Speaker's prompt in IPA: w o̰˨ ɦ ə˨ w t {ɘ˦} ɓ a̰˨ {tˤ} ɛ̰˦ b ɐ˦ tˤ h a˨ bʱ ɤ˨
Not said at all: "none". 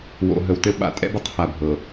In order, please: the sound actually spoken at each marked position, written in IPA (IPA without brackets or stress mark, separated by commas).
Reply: ɘ˦, tʼ